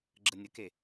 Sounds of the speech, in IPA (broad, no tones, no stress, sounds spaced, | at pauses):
ɡ͡ǁ ə nʲ ə k e